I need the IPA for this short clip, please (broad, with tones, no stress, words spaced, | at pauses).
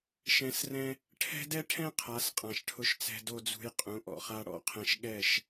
ʃɛ̃˨˦srɛ̃˧ | ʈʰɛ̤˦dɛ˦ʈʰɛ̃˦ qʰa˨˦sqʼã˨ʃʈʰʊ˧ʃt͡sɛ̤˧ do˧d͡zṳ˧j qʼũ˨˦ʔɔ̰˨χa˦ ɽɔ̰˦qʰɛ̃˧ʃ ɠɛ˦˨ʃ